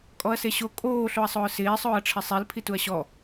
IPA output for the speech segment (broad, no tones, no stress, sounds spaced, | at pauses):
kʼ ɔ ɐ̯ s e ɕ o kʼ oː ɬ o ɐ̯ sˤ ʊː s ɪː sˤ ʊː ɐ̯ ʈ͡ʂʰ ɪ sˤ i l pʰ i t u ɐ̯ ɕ ɔ